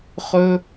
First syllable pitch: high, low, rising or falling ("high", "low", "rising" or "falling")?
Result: high